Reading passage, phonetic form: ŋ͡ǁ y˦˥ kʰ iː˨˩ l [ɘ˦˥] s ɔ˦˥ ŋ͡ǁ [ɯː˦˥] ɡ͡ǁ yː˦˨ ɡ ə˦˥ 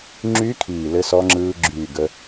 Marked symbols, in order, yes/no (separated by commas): yes, yes